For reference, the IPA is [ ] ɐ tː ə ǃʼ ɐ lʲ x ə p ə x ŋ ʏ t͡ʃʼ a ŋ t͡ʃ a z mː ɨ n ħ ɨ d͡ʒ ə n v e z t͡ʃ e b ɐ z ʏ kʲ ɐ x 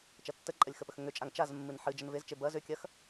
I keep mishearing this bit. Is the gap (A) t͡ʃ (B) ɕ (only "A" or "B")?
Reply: A